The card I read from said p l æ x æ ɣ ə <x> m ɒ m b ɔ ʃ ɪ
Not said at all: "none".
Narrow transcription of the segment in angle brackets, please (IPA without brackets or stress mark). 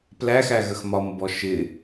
x